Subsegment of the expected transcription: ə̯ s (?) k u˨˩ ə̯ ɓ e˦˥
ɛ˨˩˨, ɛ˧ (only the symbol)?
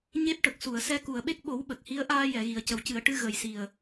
ɛ˧